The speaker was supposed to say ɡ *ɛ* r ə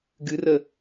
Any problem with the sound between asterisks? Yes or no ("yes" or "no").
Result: yes